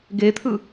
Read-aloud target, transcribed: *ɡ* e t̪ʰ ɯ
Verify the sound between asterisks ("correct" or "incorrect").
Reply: correct